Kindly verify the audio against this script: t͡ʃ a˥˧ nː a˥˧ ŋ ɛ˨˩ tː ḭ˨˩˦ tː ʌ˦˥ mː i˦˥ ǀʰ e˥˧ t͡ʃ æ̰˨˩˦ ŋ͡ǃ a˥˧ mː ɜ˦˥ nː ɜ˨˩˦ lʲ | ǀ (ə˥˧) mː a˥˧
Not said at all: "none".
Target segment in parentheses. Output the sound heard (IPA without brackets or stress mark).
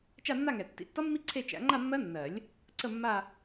ə˥˧